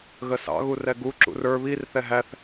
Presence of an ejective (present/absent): absent